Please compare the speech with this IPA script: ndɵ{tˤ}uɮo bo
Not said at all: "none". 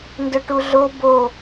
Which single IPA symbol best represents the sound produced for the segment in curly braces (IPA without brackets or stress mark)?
ʈ